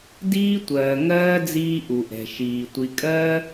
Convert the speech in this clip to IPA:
d iː˦ tʷ ɜː˨ ŋ ɜː˦ d͡z iː˦ ʔ u˨ ʔ ɛ̤˨ ʃ iː˨ tʷ i˨ kʼ ɜː˦

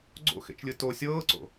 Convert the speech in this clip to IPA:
ɡ͡ǀ o̰ x ḛ t͡ʃ lʲ ɯ t o sʲ ɤː ǀ o̰

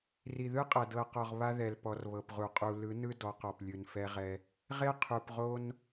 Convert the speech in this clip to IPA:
r i˨ ð ɯ˦ qʼ ɤ˨ d ɤ˨ q ɔ˨ ʁ β a˦ ð ɛ˨ l p ɔ˨ r β ɤ˨ p ʁ u˨ qʼ u˨ l ɯ˨˦ n ɯ˦ d ɔ˨˦ q ɔ˨ p lʲ ɯ˨ n f ɛ˦ ʁ ɛ˦ | ʁ e˦ qʰ u˨ p ʁ o˦ n

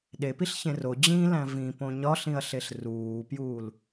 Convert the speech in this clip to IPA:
ɗ e p i ɬ ç ẽ r o d͡ʑ ĩ l æ̃ v ĩ p õ ɲ ɒ ɬ ĩ ɐ̯ ɬ e ɬ r uː p j uː l

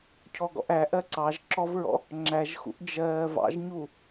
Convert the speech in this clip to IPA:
cʰ ɔ ɡ ɔ̰ ʔ æ ʔ ɜ ǀ ɑ ʒ ǁ ɔ v ɹ ɔ̰ | ŋ͡ǁ æ ʒ x ṵ ʔ d͡ʒ ɜː v ɑ̰ ʒ ɲ u

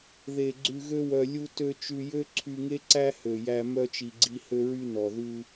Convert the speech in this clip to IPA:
ð e˨ ɡ͡ǀ ʉ˧ ɣ ø˦ w œ˧ lʲ u˧ t ø˧ t͡ʃ ʉ˧ j ø˦ ǀʰ y˧ ŋ e˦ ǀ æ˦ h ø˨ j æ˧ m œ˧ t͡ʃ i˨ ɡ͡ǀ i˧ h ø˧ ɹ y˧ n ɔ˨ ð ʉ˧

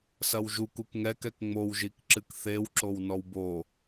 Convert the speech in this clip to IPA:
s ɐ w ʒ u k u k ŋ ɛ k ɛ k ŋ͡m o w ʒ i k ǁ ɨ k θ e w ǁ o w n ɔ w b o

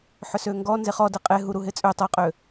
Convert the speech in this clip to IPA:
ħ ʏ s ø ŋ ɡ ɔ n z e χ ɔ d e qʼ e ɦ u ɾ u ɦ ɪ t͡sʼ ø tˤ ɐ qʼ ø

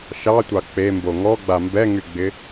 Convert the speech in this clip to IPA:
ʃ ɑ tʷ ɑ k͡p e m b o ŋ ɔ ɡ͡b a m b ɛ ŋ y ɡ͡b ɪ

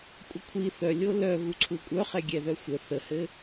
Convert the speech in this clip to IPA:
kʷʼ ə kʷʰ i θ œ lʲ o l œ ɣ u ǀʰ u kʷʼ œ χ ɛ ɡʲ ɛ ð œ xʷ ə θ ə h ɘ

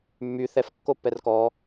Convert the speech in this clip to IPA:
mː y θ ɛ f kː o p ɛ r k ɔ

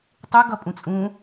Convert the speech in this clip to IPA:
tˤ u ɡ ʌ pʼ ũ t͡sʼ ũ

